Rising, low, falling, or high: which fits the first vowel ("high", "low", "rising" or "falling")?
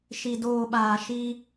low